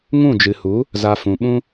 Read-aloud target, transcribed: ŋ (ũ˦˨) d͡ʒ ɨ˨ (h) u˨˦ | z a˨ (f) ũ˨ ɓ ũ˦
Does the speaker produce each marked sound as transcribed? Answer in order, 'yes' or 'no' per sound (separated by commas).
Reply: yes, yes, yes